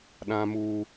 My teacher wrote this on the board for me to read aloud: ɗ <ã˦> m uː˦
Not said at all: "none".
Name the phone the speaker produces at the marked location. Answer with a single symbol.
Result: ã˦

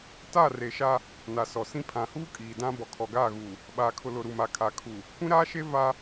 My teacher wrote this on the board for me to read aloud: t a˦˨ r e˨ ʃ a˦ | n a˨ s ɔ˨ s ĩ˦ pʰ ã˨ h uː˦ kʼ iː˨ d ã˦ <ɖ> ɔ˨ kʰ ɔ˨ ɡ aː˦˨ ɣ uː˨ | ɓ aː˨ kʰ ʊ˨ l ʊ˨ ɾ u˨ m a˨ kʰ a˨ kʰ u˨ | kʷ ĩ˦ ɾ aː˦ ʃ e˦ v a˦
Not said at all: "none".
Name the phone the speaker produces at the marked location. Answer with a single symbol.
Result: b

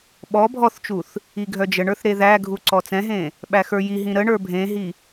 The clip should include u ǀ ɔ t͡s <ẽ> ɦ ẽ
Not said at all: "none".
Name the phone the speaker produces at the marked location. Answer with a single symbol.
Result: ɛ̃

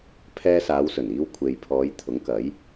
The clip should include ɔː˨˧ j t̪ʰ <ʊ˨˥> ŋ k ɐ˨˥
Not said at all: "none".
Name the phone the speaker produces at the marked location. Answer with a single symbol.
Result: ʊ˨˥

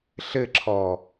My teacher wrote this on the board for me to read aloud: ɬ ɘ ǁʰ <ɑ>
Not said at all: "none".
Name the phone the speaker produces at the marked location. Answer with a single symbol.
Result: ɔ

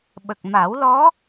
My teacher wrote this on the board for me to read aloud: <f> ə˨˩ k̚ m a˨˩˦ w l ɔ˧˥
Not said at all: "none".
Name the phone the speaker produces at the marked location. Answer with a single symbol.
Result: ɓ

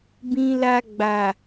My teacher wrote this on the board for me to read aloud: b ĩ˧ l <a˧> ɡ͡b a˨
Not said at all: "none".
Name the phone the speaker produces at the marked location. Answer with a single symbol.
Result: a˧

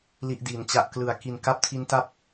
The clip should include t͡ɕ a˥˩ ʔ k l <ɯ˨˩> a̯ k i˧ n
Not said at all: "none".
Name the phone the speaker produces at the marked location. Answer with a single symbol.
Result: ɯ˧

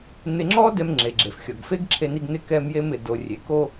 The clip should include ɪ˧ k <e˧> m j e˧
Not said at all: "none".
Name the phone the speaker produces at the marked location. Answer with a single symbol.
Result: ɛ˧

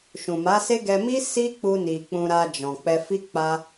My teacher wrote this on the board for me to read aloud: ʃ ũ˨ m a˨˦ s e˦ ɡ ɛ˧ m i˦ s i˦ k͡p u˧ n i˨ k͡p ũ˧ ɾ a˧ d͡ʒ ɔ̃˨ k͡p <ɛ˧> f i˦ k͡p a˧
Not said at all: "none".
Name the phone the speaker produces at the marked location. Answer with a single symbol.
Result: ɛ˧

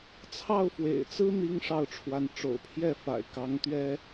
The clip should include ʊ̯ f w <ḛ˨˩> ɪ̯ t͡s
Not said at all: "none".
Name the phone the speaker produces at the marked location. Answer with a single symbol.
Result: ḛ˨˩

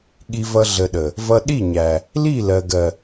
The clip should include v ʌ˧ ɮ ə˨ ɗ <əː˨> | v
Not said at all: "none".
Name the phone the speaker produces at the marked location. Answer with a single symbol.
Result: ə˨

